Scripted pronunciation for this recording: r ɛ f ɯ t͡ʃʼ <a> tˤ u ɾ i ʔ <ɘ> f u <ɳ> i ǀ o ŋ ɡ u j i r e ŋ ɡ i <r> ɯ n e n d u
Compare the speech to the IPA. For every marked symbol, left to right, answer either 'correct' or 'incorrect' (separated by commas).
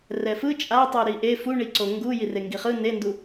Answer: correct, incorrect, correct, incorrect